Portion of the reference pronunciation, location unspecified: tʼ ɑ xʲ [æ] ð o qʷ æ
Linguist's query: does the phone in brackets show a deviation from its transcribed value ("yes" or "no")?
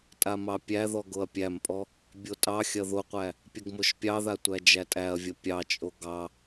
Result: yes